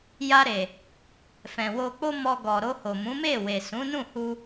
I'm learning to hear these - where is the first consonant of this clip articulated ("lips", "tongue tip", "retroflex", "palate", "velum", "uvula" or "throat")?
palate